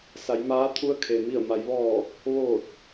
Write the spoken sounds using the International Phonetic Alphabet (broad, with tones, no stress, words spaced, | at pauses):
sa˩˧jmaː˧˥t̪ʰu˧˥ə̯ kʰe˩ mi˧˩ə̯ma˩˧j ʋɔː˧˩ | ʋoː˧˩t̚